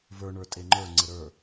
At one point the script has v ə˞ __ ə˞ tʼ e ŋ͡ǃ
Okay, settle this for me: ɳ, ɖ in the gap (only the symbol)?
ɳ